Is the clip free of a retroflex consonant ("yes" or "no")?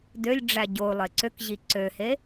no